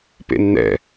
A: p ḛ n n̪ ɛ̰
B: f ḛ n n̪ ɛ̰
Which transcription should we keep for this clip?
A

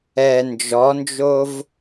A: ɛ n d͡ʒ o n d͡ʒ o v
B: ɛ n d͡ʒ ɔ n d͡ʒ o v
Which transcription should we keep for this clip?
B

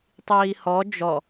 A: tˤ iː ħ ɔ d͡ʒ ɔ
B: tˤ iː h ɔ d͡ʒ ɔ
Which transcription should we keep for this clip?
B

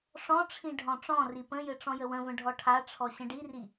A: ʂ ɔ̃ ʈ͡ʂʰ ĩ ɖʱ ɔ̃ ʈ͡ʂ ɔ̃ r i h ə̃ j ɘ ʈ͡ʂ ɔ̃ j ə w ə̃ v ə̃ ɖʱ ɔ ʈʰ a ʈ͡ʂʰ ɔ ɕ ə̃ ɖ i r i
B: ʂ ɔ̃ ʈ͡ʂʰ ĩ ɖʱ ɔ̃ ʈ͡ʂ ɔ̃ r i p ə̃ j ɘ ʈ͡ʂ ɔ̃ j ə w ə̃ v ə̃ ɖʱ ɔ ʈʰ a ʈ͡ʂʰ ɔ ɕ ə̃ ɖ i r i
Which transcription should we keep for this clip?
B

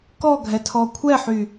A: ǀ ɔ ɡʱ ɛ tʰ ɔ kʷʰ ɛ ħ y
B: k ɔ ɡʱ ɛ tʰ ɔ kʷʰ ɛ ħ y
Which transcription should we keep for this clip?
B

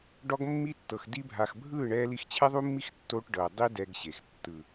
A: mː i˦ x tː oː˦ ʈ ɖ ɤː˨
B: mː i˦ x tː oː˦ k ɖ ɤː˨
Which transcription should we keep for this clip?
A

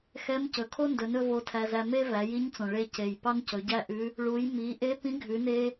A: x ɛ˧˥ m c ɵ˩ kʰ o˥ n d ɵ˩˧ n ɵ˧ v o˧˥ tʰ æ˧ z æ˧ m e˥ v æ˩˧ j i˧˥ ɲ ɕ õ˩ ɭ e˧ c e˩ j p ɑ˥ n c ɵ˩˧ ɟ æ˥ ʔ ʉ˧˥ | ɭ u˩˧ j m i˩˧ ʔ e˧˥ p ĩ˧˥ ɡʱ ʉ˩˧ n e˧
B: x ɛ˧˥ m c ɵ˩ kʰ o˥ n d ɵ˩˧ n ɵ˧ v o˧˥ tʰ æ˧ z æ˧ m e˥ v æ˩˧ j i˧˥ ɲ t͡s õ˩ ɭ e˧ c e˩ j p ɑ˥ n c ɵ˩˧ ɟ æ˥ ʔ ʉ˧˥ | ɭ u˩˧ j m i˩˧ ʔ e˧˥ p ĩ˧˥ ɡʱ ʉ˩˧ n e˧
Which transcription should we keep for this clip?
B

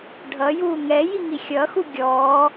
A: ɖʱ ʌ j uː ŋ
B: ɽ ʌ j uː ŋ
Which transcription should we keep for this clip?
A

